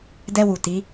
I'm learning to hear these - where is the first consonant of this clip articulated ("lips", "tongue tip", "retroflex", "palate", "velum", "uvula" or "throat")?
tongue tip